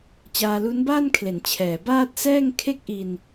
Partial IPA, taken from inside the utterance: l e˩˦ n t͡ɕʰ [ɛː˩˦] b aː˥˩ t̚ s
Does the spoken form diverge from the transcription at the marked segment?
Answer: no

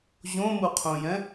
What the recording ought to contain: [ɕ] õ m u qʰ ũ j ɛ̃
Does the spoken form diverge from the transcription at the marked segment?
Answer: yes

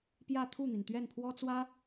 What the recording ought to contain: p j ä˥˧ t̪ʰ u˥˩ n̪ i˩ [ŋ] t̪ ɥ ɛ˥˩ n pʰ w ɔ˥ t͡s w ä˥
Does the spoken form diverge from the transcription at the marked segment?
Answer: yes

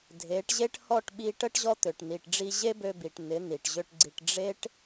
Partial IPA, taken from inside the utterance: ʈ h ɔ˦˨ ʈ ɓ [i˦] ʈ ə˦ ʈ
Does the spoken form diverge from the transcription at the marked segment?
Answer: yes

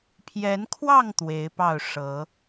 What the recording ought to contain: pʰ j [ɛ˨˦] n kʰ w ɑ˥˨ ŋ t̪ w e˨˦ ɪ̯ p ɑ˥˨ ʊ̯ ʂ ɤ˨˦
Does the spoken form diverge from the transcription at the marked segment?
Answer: no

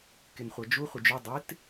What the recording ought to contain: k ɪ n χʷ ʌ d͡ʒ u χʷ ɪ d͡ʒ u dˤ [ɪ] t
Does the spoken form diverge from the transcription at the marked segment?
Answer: no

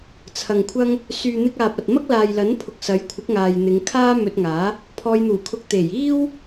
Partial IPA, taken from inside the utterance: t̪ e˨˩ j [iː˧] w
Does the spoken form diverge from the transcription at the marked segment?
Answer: yes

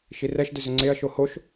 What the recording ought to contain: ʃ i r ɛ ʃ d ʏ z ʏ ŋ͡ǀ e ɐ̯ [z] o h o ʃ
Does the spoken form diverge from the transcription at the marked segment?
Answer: yes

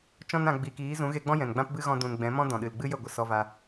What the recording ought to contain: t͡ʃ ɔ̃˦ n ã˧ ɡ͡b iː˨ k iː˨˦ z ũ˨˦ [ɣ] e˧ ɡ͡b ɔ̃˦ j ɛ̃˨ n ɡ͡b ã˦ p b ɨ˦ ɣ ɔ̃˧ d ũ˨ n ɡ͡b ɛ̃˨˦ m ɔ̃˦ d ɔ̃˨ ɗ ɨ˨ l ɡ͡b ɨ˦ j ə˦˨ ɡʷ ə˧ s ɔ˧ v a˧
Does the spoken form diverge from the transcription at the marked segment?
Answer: no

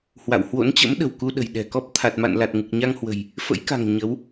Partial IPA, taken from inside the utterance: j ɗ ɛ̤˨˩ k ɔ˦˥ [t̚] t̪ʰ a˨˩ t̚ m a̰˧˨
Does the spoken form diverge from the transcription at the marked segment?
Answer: yes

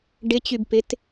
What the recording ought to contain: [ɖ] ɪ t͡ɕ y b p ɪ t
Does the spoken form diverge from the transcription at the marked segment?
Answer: no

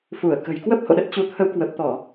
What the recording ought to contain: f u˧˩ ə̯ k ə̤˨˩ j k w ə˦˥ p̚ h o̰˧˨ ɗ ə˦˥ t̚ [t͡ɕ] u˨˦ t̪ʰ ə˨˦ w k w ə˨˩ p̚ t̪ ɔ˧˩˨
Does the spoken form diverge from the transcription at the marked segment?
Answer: no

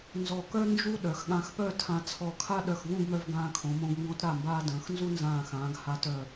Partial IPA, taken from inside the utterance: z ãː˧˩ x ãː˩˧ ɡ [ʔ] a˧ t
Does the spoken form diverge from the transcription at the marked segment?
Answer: yes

